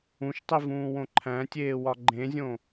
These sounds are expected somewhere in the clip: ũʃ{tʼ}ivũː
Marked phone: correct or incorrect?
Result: incorrect